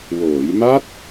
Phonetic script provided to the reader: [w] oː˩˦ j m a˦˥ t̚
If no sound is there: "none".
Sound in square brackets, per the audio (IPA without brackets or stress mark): w